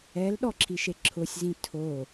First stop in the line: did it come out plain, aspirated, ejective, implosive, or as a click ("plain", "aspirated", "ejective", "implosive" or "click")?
implosive